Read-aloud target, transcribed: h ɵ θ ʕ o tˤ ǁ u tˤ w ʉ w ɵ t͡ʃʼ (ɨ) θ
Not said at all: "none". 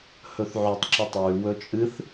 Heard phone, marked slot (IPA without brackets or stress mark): ɨ